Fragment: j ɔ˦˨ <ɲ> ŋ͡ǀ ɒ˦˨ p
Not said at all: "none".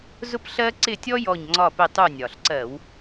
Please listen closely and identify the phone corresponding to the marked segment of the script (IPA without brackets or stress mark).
ɲ